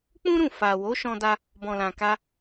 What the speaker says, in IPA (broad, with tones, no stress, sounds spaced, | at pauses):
k͡p ũ˦ ɾ ũ˦˨ f a˨ w o˨˦ ʃ ɔ̃˧ d a˧ | b ɔ̃˨ l ã˨ k a˧